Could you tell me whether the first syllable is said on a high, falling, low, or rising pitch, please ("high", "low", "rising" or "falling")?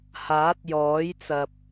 rising